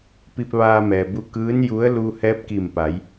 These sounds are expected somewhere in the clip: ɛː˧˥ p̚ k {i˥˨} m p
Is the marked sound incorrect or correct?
incorrect